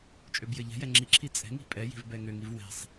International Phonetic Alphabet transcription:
t͡ʃʼøbjɘʎɛ̤jɛ ŋ͡ǁiǁʰi t͡sʼɛ̤ŋi̤ pʼɛji̤v bɛŋøŋiv wɛ̤sˤ

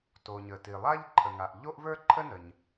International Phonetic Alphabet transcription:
to˩ɲə˩ti˩lˠa˥ʎ ǃʰə˩ŋa˩ʔ ʎo˥ʔvə˞˥ǃʰə˥ nə˩ɲ

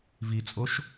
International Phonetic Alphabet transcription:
vit͡sʼoʃ

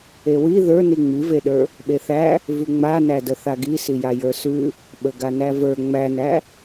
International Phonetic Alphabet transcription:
ewi ðə˞ niŋ͡miveɗə˞ | ɓeθæ | vʉŋ͡manædə θaɡi sijajə˞sʉ | ɓəɡanævə˞ ŋ͡mænæ

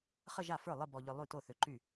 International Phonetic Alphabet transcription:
χə˥˧ʒa˥˩fə˞˥˩ lˠɨ˥˧bɔ˧ʎʏ˧ lˠy˥˩to˥˩θʏ˧ǃy˥˩

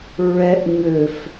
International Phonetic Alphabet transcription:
ɹɛʔ ɲøf

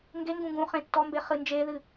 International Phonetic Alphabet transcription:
ŋɡeŋɡũ ɡũχẽ tːɔmbe χɨnd͡ʒeðɨ

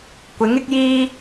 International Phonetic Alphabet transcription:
kʷɪ˨˥ŋɪ˥k̚jiː˥

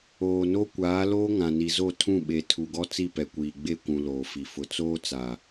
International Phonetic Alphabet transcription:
oː˨no˦ kʷaː˨˦loː˦ ŋã˨ni˨zo˦˨ tʰũ˦˨ɓe˨ tʰu˨ɡɔ˦ t͡si˦˨pɛ˨kʷiː˨ɡ͡be˦˨ kʷũ˨ loː˨fi˨fʊ˦ t͡soː˦t͡sa˨

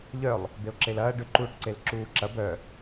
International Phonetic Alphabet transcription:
ʎœlˠ | beo̯ǁelɐː ɖʏǃuːʈǀel ǁuːǁɐ bœ

